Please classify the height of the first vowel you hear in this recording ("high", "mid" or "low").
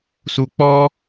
high